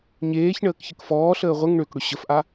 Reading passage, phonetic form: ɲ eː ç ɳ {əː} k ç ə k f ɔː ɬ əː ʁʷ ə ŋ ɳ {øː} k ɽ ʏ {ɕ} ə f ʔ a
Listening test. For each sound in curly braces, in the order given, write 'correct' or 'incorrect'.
correct, incorrect, correct

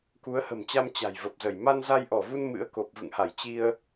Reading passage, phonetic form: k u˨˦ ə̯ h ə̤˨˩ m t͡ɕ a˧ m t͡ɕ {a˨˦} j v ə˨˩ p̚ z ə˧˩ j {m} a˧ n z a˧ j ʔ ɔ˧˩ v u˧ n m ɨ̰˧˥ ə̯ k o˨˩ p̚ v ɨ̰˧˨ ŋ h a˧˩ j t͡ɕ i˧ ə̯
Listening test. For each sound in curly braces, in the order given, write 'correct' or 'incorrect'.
incorrect, correct

